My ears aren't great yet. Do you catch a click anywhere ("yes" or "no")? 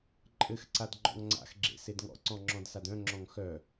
yes